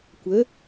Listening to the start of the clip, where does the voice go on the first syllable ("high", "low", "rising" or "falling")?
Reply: rising